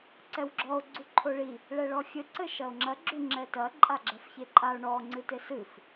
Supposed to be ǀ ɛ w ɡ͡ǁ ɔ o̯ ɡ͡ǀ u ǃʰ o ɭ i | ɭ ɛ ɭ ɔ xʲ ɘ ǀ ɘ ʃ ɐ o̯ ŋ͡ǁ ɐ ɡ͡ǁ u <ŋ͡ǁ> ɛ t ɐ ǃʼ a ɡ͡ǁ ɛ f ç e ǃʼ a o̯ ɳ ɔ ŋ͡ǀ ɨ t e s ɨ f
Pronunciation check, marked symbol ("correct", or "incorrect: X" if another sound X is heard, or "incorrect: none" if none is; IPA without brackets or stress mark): correct